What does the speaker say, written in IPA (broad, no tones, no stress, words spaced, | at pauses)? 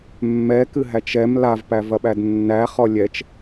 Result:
mːɛkɨɦæt͡ʃ ɛm lavpævɐɓæd nːæχɔ lʲɛt͡ʃ